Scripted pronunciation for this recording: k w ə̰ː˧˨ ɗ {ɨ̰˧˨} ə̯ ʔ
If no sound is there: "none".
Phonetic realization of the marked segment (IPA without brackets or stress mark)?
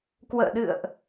ɨ̰˧˨